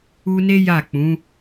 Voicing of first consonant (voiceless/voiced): voiced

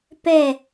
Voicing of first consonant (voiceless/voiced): voiceless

